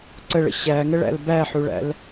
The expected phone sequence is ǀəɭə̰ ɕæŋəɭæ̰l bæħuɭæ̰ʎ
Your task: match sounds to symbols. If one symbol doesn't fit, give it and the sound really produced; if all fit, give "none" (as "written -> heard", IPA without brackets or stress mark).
ʎ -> l